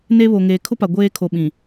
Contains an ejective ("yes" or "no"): no